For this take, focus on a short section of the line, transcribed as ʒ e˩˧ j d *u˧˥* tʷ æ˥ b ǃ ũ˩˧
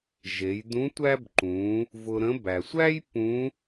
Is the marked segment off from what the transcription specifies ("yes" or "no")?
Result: yes